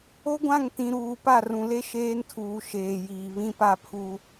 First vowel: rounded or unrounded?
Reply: rounded